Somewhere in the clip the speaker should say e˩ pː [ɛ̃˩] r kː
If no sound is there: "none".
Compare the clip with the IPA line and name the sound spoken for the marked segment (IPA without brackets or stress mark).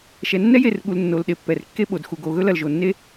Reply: ɛ˩